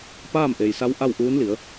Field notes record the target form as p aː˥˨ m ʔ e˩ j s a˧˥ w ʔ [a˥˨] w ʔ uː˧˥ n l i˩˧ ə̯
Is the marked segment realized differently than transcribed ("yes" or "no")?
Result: no